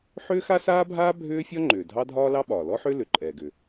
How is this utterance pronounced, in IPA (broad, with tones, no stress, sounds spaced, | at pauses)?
ħ ʏː˥ x a˥ s aː˥ bʱ aː˥ bʱ ʏː˥ fʲ ɒ˥ ŋ͡ǃ ʏː˩ dʱ ɑ˥ dʱ ɒː˥ l ɑ˥ ɓ ɒː˩ l ɔ˥ ħ ʏː˥ l ʏ˩ ǃʼ ɛː˩ ɡ ʏ˩